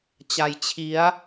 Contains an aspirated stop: yes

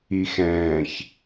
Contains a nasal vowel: yes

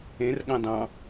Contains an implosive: yes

